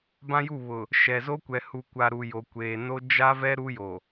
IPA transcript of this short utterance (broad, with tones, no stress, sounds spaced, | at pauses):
b ã˦ j u˦˨ β ʊ˨ | ʃ ɛ˨ z o˦ kʷ ɛ˨ h u˨ kʷ a˨ ɾ u˨ j o˨ kʷ eː˨ n o˦ d͡ʒ a˦ v ɛ˦ ɾ u˦ j o˨